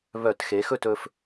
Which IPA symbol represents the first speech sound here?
β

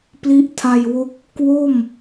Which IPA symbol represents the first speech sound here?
p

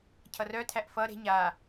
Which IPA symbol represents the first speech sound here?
cʰ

